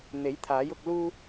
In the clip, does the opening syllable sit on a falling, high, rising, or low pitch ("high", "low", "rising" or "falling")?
rising